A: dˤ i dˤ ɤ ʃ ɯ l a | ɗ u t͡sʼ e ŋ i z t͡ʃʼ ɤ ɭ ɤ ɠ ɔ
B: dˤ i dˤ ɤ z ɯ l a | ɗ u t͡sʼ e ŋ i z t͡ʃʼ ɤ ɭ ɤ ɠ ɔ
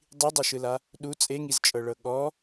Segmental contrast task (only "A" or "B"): A